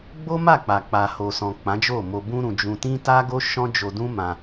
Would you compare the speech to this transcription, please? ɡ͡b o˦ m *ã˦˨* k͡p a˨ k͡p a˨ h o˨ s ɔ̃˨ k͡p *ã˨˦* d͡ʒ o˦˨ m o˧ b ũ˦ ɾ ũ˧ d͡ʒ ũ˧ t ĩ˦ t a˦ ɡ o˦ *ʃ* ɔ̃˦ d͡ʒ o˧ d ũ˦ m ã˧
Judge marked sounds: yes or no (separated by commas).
no, yes, yes